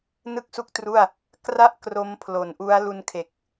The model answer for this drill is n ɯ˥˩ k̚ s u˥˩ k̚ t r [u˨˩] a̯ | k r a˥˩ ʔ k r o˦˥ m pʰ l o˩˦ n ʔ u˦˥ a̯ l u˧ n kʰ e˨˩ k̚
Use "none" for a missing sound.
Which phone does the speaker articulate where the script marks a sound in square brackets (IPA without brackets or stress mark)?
u˥˩